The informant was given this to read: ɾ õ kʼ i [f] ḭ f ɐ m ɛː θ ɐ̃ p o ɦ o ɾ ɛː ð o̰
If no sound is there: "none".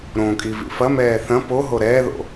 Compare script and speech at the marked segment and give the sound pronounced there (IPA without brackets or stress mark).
v